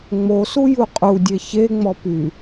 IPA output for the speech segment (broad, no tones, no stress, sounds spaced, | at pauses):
ŋ͡m o s u j u qʼ u dʲ e ç e ŋ͡m ɔ p y